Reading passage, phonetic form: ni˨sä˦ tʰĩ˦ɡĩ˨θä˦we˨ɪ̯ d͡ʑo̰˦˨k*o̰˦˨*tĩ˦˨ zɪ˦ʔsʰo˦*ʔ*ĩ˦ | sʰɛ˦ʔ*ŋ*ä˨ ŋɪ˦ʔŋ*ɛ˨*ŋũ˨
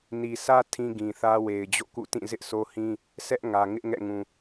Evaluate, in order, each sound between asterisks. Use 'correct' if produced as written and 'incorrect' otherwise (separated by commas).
incorrect, incorrect, correct, incorrect